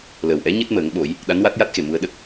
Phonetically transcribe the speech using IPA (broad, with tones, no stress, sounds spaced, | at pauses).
l əː˨˩ w ʔ ɛ˧˥ ɲ ɨ˦˥ t̚ m əː˨˩˦ ŋ ɓ o˨˩˦ j | ɗ a˧˥ n w a˦˥ t̚ j a˦˥ t̚ x e˨˩ m u˧ ə̯ ɗ ə˦˥ k̚